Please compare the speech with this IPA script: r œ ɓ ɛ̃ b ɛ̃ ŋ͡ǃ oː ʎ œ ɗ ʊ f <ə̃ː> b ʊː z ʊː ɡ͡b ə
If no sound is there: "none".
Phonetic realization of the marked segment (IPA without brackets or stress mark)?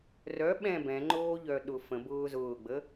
ə̃